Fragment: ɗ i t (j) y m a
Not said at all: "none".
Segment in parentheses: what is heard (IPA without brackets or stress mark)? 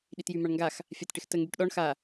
j